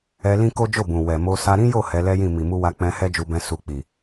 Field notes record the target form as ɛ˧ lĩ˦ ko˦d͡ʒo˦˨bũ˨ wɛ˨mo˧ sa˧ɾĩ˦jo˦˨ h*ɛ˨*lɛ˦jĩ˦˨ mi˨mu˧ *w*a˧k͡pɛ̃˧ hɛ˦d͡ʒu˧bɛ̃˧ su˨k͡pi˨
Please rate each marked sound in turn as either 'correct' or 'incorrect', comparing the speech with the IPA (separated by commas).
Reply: incorrect, correct